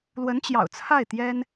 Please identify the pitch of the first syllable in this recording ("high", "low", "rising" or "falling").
rising